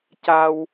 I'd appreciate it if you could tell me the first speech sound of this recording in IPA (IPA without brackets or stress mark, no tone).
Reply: c